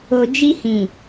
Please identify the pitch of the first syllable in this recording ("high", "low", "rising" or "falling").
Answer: low